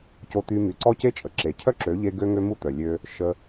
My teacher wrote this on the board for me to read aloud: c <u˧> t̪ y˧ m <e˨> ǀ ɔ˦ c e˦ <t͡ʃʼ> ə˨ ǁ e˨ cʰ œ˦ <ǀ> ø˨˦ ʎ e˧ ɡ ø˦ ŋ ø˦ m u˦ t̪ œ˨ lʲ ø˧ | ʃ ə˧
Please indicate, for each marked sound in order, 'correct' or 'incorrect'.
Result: incorrect: o˧, incorrect: y˨, correct, incorrect: ǁ

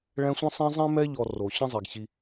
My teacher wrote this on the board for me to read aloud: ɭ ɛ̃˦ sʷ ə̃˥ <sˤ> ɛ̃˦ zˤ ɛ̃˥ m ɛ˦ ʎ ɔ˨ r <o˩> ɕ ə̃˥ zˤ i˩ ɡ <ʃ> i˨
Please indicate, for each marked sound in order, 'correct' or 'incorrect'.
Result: correct, correct, incorrect: ɕ

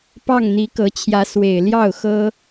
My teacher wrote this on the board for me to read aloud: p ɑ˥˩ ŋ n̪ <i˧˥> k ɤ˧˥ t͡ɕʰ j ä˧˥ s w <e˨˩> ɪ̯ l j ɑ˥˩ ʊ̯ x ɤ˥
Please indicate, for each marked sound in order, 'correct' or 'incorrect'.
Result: correct, correct

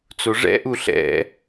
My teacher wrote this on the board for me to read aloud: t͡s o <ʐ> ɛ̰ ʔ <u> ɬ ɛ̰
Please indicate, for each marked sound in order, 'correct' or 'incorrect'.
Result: correct, correct

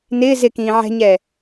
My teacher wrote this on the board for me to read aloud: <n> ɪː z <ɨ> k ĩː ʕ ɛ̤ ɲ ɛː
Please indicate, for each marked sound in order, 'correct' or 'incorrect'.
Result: correct, incorrect: ɪ

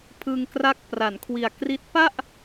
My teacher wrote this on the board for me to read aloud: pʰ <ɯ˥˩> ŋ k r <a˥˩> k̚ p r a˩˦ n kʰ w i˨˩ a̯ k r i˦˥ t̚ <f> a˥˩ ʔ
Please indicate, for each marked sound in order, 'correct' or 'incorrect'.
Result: incorrect: ɯ˧, incorrect: a˦˥, incorrect: p

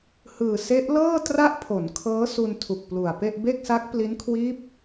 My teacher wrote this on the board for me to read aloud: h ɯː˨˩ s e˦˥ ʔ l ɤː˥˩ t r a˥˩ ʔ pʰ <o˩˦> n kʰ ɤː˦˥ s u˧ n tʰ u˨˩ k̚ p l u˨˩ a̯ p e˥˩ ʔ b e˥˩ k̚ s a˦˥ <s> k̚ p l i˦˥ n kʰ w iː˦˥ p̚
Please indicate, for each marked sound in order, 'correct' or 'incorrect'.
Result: correct, incorrect: none

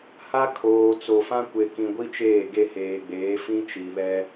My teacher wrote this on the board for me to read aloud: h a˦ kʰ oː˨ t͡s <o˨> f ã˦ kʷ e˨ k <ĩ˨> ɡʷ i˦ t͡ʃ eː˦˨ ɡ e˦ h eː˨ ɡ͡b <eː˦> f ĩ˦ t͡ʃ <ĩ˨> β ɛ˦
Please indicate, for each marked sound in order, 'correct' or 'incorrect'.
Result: correct, correct, incorrect: eː˨˦, incorrect: i˨

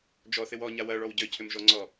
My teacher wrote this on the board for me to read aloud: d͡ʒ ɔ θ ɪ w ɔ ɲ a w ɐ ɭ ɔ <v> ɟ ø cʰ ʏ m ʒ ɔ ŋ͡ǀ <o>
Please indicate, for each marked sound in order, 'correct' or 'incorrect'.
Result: incorrect: w, incorrect: ɔ

